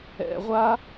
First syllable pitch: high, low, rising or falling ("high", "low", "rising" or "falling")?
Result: low